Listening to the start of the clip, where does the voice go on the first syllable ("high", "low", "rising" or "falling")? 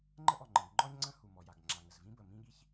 high